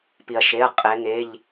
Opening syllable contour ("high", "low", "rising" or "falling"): low